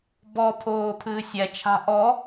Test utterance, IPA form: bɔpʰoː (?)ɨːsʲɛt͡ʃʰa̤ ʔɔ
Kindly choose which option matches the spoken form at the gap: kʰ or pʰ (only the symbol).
pʰ